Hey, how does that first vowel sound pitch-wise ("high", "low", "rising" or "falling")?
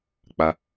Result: low